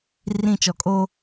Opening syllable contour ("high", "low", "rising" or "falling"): falling